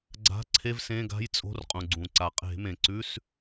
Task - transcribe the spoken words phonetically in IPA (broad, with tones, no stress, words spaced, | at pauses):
ɡ͡ǀa̤˧˥˧ǀʰe˧˥˧vsẽ˧˥˧ɡa̤˧˥˧j t͡sʼo̤˧˥˧rqʼũ˩ɡ͡ǀũ˩ ǀa˩qʼe̤˧˩˧mẽ˩ǀʉ˧˥˧s